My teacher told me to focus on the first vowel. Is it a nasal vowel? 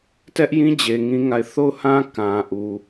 no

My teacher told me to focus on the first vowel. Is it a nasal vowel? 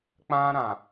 yes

